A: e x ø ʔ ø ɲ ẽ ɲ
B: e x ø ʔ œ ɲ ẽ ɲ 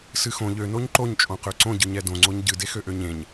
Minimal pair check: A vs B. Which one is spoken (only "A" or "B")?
A